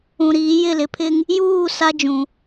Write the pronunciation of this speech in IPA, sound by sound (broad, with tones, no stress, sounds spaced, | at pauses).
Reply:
ũ˨ ɾ iː˨˦ j ɪ˦˨ l ɪ˨ pʰ ɪ˦ ŋ | j uː˦˨ s a˦ d͡ʒ ũ˨